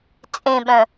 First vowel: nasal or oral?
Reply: nasal